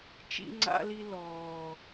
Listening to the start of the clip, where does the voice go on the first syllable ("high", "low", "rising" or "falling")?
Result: high